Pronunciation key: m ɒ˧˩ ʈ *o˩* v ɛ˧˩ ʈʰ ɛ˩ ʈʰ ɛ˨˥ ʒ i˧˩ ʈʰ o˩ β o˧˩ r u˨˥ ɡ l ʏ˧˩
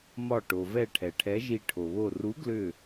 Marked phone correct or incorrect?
correct